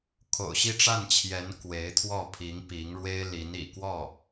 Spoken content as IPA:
kʰo̰˨˩ʊ̯ɕi˥˧ʈ͡ʂa˥˩nt͡ɕʰjɛ˧˥n kwe˧˥ɪ̯t̪ʰwɔ˥˩ pʰi˧˥ŋpi˧˥ŋɻwe˥ɪ̯ li˧˥nḭ˨˩kwɔ˥˩

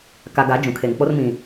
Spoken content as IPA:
ka˨ɡa˨˦ d͡ʒũ˨kʰe˨ŋk͡po˦r mĩ˨

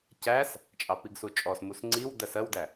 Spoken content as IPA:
cæs | t͡ʃʼɑpiɡsut͡ʃʼɔs musŋ͡ǀiw dɜsɜwdæ

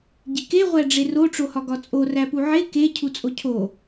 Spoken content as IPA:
ɟike ʁʷæɖ͡ʐero ʈ͡ʂohɒɡɒt͡sʼo ræpuʕe ke cʰut͡sʼocʰo

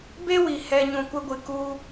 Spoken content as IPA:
be˦wi˨hɛ˧ ɲũ˧kʷə˦ɡʷɨ˧ ku˦

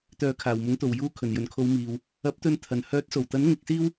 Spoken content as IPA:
t̪œː˨˥kʰaː˨˩wmʊ˨˥ŋ t̪o˨˩wjuː˧ kʰɵ˨˩njɵ˨˩nkʰo˨˧wmiː˨w | ɐ˨˥p̚t̪ɵ˧n t̪ʰɐ˨˩n hœː˨˥t̚so˨˩wt̪ɐ˨˥n ŋɪ˧k̚siː˥w

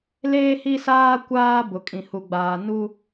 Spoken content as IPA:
leː˦hi˦saː˦ kʷaː˦ bʊ˨kʼĩ˨hu˨ɡ͡baː˨ nu˦

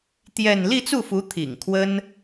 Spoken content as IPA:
t̪jɛ˥˧n li˥˧t͡su˥˩fu˧˥ t̪ʰḭ˨˩ŋkʰwə˥n

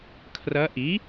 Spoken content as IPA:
kʰrɐ˧˥ ʔi˩˥

